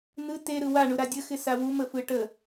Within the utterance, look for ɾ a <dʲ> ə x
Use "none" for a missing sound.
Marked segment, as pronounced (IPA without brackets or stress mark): dʲ